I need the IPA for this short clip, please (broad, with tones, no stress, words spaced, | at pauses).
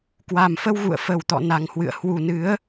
kwa˨˩mfə˧wɣṵ˧˨ə̯ fə˨˩wt̪ɔ̰˧˨ na˨˩ŋhwɨ̰˧˨ə̯ hwu˨˩ nɨ˨˦ə̯